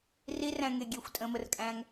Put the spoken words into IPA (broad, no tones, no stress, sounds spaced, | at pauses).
r i r æ̃ ŋ e ɡʲ e xʷ tʼ ə̃ː m ə r kʼ æ̃ ŋ